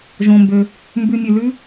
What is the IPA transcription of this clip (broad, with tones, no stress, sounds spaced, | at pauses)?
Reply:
ʒ õ˩ m b ø˩ | m b ʉ˨ mʲ ʉ˩ l ʉ˦